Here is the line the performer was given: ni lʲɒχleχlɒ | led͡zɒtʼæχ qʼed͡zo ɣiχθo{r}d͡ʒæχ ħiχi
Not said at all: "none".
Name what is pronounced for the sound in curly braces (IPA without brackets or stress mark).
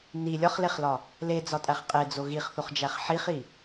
χ